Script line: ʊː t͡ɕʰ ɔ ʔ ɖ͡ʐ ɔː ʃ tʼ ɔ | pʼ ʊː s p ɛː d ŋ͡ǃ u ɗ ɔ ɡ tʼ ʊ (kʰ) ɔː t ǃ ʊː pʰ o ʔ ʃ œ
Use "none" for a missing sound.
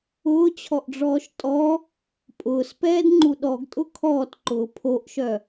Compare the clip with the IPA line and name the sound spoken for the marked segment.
kʰ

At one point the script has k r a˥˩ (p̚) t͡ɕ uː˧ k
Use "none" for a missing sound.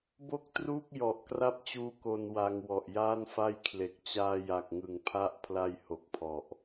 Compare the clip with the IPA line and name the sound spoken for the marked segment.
p̚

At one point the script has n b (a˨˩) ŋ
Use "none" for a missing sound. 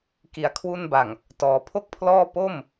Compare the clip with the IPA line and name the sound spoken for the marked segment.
a˨˩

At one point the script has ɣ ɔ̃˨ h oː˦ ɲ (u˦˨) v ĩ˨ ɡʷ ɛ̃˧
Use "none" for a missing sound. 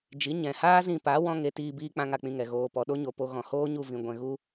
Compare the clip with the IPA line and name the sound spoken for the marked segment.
u˦˨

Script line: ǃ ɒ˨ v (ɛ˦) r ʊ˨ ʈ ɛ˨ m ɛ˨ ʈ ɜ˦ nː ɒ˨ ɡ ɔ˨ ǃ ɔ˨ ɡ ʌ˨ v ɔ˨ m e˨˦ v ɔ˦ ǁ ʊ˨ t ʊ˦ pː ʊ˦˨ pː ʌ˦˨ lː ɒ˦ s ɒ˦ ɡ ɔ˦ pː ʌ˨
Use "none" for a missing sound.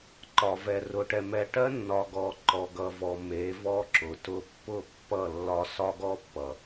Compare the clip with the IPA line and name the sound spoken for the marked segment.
ɛ˨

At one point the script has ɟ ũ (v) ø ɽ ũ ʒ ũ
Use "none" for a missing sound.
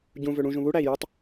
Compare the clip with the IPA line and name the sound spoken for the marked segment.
v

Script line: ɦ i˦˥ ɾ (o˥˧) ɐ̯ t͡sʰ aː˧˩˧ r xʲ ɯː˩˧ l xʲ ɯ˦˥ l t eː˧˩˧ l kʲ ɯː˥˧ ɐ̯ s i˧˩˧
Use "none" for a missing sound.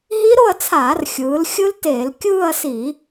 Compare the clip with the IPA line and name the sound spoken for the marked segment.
o˥˧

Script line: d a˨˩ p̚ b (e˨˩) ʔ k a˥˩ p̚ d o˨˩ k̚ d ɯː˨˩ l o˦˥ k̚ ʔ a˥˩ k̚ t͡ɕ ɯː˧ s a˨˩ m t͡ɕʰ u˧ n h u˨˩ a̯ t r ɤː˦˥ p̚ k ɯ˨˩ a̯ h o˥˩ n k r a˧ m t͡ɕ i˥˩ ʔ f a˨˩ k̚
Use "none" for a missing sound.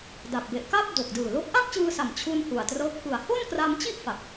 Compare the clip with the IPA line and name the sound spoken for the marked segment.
e˨˩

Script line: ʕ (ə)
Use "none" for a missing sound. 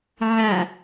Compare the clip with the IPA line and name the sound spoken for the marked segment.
a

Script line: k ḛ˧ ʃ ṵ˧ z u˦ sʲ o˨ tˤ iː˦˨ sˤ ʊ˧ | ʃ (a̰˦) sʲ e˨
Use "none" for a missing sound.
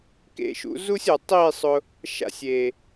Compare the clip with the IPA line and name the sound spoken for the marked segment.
a̰˧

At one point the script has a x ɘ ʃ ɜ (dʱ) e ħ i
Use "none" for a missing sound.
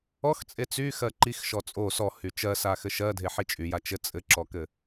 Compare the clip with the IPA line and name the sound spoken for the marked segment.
dʱ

